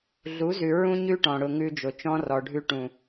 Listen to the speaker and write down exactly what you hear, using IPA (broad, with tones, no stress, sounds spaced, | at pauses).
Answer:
ɮ u˨˦ z ʉ˨ ɹ ũ˦ ɲ ʉ˦ ʈ ɔ̃˨ ɽ ʊ˨ ŋ ʉ˦ d͡ʒ ʊ˨ t͡ʃ ɔ̃˦ r ɔ˨ ɖʱ ʉ˦ ʈ ũ˨